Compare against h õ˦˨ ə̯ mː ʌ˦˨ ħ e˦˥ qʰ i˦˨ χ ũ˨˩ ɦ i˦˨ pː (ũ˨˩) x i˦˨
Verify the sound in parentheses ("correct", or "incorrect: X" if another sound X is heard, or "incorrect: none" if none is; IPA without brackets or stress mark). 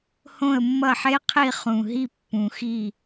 correct